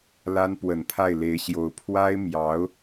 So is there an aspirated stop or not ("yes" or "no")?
yes